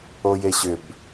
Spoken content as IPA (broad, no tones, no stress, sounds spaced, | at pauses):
o j e ɕ ʏ b